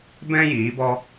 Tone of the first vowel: high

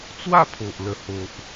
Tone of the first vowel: falling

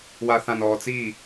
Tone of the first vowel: low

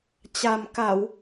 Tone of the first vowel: low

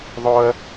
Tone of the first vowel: high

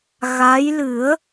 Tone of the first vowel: rising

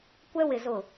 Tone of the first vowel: high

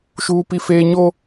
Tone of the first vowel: high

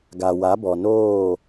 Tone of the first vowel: low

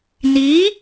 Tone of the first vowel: rising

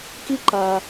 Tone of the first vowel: high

